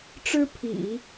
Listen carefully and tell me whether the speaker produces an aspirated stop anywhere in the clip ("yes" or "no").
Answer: yes